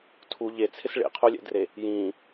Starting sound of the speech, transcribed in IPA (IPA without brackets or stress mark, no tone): tʰ